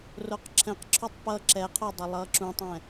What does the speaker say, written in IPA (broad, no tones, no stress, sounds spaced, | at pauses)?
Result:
r o q ǁʰ ɛ̃ q ǁʰ o tˤ p ʌ ǁ ɛ qʰ o dˤ ɛ lˠ ʌː ǁ ũ tˤ ɛ̃